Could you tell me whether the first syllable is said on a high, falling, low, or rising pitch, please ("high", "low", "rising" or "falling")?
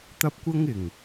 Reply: high